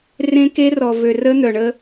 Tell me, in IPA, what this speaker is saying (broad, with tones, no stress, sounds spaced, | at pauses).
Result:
r ẽ˦ k e˦ r ɔ˨ v ø˨ r ə˦ n̪ œ˨ ɳ ə˦